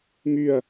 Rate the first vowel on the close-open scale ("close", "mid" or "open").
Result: close